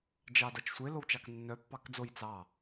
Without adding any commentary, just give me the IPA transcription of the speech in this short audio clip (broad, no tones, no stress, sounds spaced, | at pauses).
d͡ʒ ɑ d ʌ t͡ʃ sʷ e l o w t͡ʃ ɑ k nː œ pː ɑ k d͡z o j t͡s ɑ